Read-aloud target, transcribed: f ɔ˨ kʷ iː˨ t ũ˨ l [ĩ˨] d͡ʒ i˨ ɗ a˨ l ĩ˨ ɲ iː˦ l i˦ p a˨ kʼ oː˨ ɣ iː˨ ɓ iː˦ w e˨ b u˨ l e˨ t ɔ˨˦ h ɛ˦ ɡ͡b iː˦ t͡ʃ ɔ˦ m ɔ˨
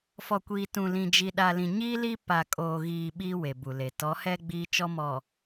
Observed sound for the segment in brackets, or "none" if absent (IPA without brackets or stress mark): ĩ˨